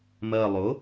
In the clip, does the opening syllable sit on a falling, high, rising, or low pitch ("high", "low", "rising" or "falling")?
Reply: low